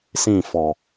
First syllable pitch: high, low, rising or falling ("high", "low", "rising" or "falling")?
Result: falling